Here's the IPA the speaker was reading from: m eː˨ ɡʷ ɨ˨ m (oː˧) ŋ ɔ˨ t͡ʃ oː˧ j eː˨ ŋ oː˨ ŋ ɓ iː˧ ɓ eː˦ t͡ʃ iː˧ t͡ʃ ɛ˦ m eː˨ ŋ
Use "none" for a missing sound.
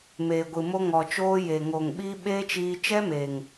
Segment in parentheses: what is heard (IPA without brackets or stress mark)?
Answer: o˧